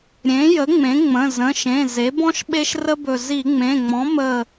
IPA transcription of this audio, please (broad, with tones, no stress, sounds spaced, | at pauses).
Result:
ɾʲ ẽ˩˥ j ə˩˥ ŋ͡m ẽ˩˥ ŋ͡m ə̃˩˧˩ z ə̃˩˧˩ ʃ ẽ˩˧˩ z e˩˥ b ɔ̃˥ ʃ ɓ e˥ ʃ r ə˥ b ɵ˧˩ z i˧˩˧ ŋ͡m ẽ˩˧˩ ŋ͡m ɔ̃˩˥ m ə˧˩